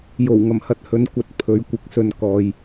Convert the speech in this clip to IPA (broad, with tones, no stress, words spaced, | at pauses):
jo˨˩wŋɐ˨˩mhɐ˧t̚hɵ˨˧n kʷɐ˨t̚pʰɵ˨˧ɥ kʷɪ˨˥k̚sɵ˨n kɔː˨j